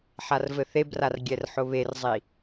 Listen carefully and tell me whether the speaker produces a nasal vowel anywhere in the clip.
no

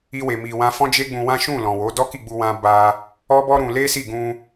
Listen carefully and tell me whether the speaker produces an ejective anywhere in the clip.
no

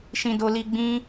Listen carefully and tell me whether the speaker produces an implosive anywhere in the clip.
no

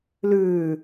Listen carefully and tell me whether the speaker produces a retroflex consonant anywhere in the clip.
no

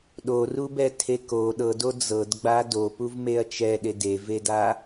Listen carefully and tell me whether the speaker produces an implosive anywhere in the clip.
yes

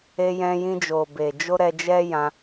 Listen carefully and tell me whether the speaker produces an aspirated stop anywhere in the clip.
no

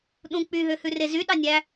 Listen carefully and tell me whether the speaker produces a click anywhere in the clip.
no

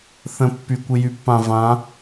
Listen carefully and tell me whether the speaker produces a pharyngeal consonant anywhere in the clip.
no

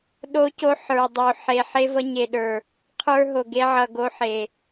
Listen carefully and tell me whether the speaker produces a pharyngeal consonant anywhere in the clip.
yes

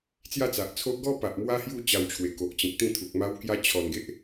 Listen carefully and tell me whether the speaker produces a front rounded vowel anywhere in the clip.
no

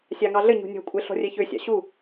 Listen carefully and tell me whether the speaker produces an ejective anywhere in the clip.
yes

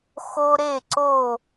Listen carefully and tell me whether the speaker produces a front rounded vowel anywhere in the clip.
no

